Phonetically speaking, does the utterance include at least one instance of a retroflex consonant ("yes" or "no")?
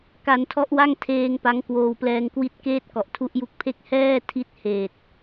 no